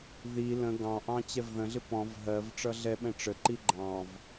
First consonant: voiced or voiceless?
voiced